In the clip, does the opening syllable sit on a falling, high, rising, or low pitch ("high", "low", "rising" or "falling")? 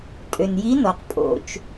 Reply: low